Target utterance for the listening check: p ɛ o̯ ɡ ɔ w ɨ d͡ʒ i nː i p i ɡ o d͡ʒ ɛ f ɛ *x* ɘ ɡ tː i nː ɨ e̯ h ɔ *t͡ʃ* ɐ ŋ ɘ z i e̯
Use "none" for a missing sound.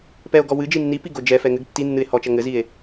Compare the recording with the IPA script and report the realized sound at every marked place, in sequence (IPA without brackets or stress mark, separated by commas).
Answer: ŋ, t͡ʃ